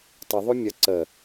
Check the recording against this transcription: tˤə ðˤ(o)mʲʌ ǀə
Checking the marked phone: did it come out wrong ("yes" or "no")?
no